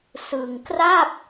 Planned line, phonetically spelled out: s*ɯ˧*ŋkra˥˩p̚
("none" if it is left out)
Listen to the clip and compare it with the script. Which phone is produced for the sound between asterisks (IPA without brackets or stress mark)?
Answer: ɯ˧